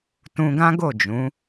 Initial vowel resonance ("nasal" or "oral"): nasal